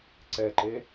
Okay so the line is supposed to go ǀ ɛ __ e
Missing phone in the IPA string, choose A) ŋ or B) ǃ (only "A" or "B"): B